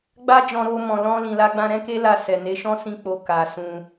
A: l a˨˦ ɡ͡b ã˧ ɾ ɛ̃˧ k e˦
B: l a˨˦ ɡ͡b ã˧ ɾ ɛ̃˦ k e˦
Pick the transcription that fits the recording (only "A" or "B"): B